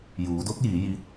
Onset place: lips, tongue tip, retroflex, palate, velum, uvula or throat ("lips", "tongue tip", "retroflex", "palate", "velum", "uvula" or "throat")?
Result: palate